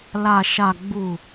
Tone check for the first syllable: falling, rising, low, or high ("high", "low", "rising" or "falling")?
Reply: low